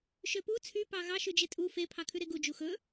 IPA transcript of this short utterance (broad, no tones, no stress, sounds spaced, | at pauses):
ʃ ø p u t͡sʰ y p ɑ ɣ ɑ ʃ ʉ d͡ʒ e tʼ u f e pʰ ɑ kʰ ʉ ɾ e ɡ u d͡ʒ u x ɵ